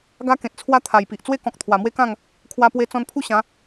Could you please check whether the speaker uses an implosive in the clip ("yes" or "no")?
no